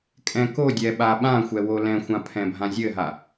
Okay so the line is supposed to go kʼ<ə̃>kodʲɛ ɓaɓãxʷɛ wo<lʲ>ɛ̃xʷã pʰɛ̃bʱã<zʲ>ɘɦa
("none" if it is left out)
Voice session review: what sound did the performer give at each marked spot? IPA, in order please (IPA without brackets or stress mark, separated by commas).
ɛ̃, l, zʲ